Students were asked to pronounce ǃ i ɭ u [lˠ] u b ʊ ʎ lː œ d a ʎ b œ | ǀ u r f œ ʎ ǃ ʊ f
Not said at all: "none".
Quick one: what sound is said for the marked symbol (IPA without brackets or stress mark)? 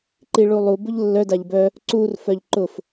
lˠ